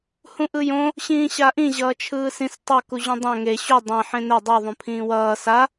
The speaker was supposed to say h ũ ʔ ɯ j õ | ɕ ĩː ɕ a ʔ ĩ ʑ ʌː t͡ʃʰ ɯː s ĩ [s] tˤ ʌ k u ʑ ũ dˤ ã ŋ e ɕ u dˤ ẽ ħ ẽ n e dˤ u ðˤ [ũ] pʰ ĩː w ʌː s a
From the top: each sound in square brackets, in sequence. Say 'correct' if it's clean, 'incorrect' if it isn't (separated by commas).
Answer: correct, correct